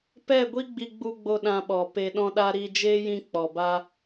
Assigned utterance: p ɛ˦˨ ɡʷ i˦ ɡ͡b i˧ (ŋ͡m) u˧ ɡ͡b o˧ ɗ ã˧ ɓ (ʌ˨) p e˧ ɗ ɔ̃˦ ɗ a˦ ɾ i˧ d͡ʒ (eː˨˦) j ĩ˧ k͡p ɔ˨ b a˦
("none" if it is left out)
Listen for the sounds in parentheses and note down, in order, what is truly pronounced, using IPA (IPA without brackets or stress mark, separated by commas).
ɡ͡b, ɔ˨, eː˦